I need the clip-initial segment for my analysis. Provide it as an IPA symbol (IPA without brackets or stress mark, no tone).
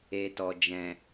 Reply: e